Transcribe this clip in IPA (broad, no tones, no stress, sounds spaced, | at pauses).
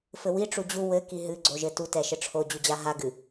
f ɘ w i ʈ͡ʂ u d͡ʑ u w ɘ k i ɦ ɨ ɡ͡ǀ o ʒ ɘ t u t ɛ ʃ ɘ ʈ͡ʂʰ o d͡ʑ u d͡ʑ a ɦ a ɡ ɨ